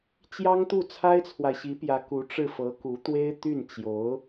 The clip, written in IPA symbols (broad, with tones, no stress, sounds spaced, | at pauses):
t͡ɕ j ɑ˥ ŋ t̪ u˥˩ t͡sʰ a˥ ɪ̯ t͡sʰ w a˨ ɪ̯ ɕ i˧˥ p j ä˧˥ k u˧˥ ʈ͡ʂ ɻ̩˥˩ f ɤ˧˥ k u˧˥ t̪ w e˥ ɪ̯ t̪ y˥˩ n t͡ɕ j o˧˥ ʊ̯